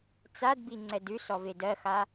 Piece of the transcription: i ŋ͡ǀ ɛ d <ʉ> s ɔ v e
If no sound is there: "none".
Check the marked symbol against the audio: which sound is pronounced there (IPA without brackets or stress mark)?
ʉ